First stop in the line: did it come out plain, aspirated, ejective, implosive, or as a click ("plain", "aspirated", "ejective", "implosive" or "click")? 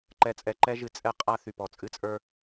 click